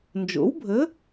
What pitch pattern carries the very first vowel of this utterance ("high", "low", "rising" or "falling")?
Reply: rising